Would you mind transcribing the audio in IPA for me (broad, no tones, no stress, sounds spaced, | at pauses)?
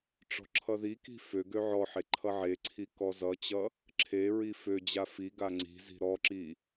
ʈ͡ʂ ɔ̤ ǁʰ ʌ ð i k i̤ f ø ɡ ø ʕ ɔ ħ e ǃʰ ʌ ʕ e ǀʰ i k ɔ z ʌ t͡ɕ ʌ | ǁʰ e ɹ i f ø d͡ʑ a f i ɡ a ŋ͡ǀ i̤ z i̤ ɾ ɔ ǁ i